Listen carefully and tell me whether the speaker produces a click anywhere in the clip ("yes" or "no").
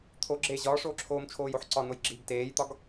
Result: yes